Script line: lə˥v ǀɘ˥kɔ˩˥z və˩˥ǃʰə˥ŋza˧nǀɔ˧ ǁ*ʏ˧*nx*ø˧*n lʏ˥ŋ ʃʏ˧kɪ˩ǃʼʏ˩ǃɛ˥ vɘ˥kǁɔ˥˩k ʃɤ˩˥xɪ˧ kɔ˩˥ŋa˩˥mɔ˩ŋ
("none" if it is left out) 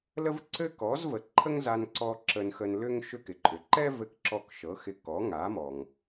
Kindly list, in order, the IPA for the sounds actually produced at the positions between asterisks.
ə˧, ə˧

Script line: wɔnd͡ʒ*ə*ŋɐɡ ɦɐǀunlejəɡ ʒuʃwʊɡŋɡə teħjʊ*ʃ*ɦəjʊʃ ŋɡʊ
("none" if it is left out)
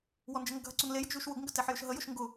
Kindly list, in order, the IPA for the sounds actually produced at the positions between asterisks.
ə, ʃ

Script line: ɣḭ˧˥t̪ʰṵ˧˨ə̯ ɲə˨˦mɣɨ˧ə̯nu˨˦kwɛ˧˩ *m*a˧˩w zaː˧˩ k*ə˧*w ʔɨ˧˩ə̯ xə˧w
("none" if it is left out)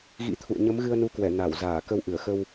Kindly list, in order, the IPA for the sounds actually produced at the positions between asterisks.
n, ə˧

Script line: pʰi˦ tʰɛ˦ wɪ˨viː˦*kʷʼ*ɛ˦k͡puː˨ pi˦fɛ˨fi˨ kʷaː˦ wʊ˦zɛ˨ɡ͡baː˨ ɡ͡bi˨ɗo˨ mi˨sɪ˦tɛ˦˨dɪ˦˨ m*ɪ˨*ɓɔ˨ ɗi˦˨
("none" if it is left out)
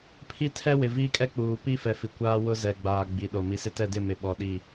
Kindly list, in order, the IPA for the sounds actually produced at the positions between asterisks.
kʼ, ɪ˨

